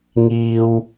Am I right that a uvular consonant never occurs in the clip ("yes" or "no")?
yes